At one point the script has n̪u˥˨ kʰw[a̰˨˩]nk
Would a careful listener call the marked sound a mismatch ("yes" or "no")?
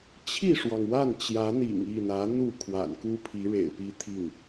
no